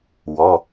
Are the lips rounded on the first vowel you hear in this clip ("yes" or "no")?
yes